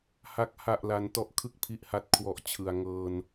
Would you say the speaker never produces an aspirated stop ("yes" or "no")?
no